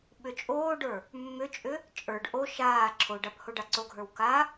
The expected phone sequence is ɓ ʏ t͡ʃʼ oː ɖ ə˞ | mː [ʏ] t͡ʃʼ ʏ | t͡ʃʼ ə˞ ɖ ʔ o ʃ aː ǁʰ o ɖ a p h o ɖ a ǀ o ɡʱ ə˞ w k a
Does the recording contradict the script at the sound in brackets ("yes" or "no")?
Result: no